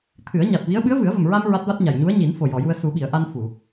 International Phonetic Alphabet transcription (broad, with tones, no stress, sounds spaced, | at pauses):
t̪ʰ ɨ˨˩˦ ə̯ ɲ a˨˩ t̚ v i˧˥ ə̯ ɓ ɨ˧˥ ə̯ v ɨ˨˩˦ ə̯ v ə˨˩ m ɹ a˧ m ɹ a˦˥ t̚ v a˦˥ t̚ ɲ a˨˩ j ɲ u˧˥ ə̯ ɲ i˨˩˦ n f o˨˩ j ɔ˨˩˨ j u˧ ə̯ s u˨˩˦ ɓ i˨˩˨ ə̯ ʔ a˧ n f u˨˩˨